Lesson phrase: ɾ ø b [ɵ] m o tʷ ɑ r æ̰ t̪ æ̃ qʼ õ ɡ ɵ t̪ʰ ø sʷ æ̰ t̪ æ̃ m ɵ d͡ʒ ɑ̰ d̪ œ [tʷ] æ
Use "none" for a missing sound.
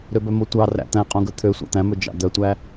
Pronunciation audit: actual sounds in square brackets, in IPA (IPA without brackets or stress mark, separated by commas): œ, tʷ